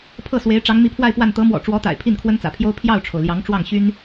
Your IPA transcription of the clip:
pʰɤ˥˩swe˧˥ɪ̯ ʈ͡ʂɑ˧˥ŋmi˧˥pʰwa˥˧ɪ̯pwa˥˩n t̪ɤ˧˥mwɔ̰˨˩ʈ͡ʂwɔ˧˥t̪a̰˨˩ɪ̯ pʰi˥˩nkʰwə˥nt͡sä̰˨˩pʰjo˥ʊ̯ pʰjɑ˥˩ʊ̯ʈ͡ʂʰo˩ʊ̯ljɑ˧˥ŋ ʈ͡ʂwɑ˥˩ŋɕy˥n

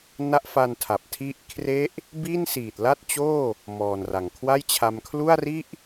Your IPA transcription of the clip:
na˦˥ʔfa˧n tʰa˨˩p̚tʰi˥˩ʔ kʰre˦˥ʔ | bi˥˩nsiː˨˩t̚la˥˩t̚t͡ɕoː˥˩ | mɔː˨˩nra˨˩ŋ kʰwa˥˩jt͡ɕʰa˧m kʰlu˥˩a̯ri˥˩ʔ

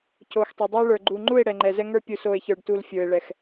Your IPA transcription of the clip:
co˨xtˤo˨dˤə˞˦ ɭə˞˨ɡ͡ǃu˨ŋ͡ǃu˦˨e̯ ɽɛ˨ŋ͡ǃɛ˨zɛ˦ŋə˞˦ pʲu˨s o˨e̯çə˞˨ɖtu˨l fʲə˞˨e̯ɭɛ˨x

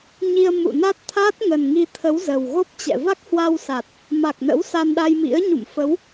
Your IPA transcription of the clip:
ɲi˧ə̯mṵ˧˨na˦˥t̚t̪ʰaː˦˥t̚ ŋə˨˩nŋi˧t̪ʰə˨˦w zə˨˩wɣo˦˥p̚t͡ɕɛ̰˧˨ va˦˥k̚hwa˧wsa˨˩t̚ | ma˨˩k̚nə̰˧˥w sa˧nɗa˧jmḭ˧˥ə̯ ɲṵ˧˨mfə˨˦w

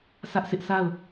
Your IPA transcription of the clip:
sä˦ʔsɪ˦ʔ sʰa˦˨ʊ̯

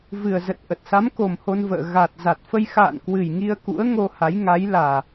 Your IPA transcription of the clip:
vɨ˨˩ə̯zə˨˩t̚ʔə˨˩t̚sa˨˦m ko˨˩mho˧nvə̰ː˧˨ ɣa˨˩t̚ za˨˩t̚fə˧j xa̰ː˧˨nkwɨ˨˩j ŋi˧ə̯kṵ˧˥ə̯ ŋo˧ha˨˦j ŋa˨˦jlaː˨˩

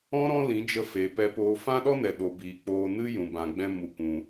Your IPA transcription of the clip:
ɔ̃˦ ɾɔ̃˦lĩ˨˦d͡ʒə˧feː˨ pɛ˧poː˧ fã˦ɗɔ˦nɛ˨ ɗo˨biː˨ k͡poː˧nɨ˦ jũ˨bã˨ɡ͡bɛ̃˧ mu˨kʷũ˨

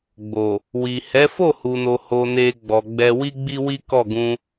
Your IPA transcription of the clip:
ɡ͡bo˨ | wi˨ hɛ˨˦fo˦˨hu˨no˨ ho˧ne˧ɡ͡bɔ˨ɡ͡bɛ˧ wi˦ɡ͡bi˦wi˦ kɔ˦˨ ɡũ˧

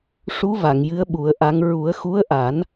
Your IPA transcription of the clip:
ʂu˧˥ va˨˩˨ŋjɨ˧˥ə̯ɓu˨˩˦ə̯ʔa˧˥ŋ ɹu˨˩˦ə̯xu˧˥ə̯ʔa˨˩˦n

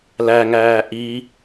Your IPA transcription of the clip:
læŋæː ʔi

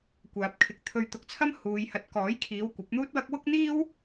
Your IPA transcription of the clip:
kʷaː˨p̚kʰɪ˨k̚ t̪ʰɵ˧ɥt̪ʊ˧k̚t͡sʰɐ˥m huː˨˧j hɐ˨˥t̚kɔː˨˥jkʰiː˨˧w kʷɐ˨˥p̚ n̪uː˥t̚wɐ˥k̚ wʊ˥k̚n̪iː˥w

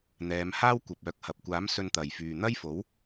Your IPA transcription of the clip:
n̪ɛː˨˧m haː˥wkʷɐ˨p̚ œː˨˥k̚hɐ˨p̚kʷaː˨˥m sɵ˧nt̪ɐ˨jfyː˨ n̪ɐ˥jfo˨˥w

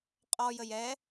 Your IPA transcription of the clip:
qʼɔ jəjɛ

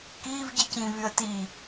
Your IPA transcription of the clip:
kiːvɟicĩːvyə̯ ti

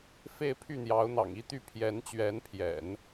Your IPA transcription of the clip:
fe˥˧ɪ̯pʰy˥˩n̪jɑ˧˥ʊ̯ n̪ɑ̰˨˩ŋi˥t̪y˥˩ pʰjɛ˧˥nt͡ɕɥɛ˧˥npʰjɛ̰˨˩˦n

